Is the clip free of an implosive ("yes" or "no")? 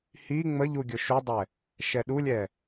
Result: no